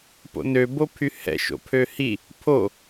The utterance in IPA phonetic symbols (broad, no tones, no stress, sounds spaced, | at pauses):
p o̰ n ø b o pʰ y h ɛ̰ ʃ o̰ pʰ ø h i | pʰ o